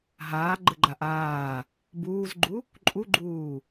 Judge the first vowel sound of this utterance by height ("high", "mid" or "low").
low